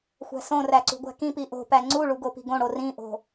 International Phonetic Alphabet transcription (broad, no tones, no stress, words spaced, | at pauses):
xʷæ̤sõræ ǀṳɡʷæ̤kĩpi ʔo̤pæ ŋ͡ǀuɭu ɡopi̤ɡõɽo rĩʔo̤